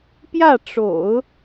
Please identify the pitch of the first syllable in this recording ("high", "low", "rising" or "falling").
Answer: falling